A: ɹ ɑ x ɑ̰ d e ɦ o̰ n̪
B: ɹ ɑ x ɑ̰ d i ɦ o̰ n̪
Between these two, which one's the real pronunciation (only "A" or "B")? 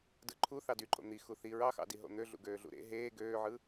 B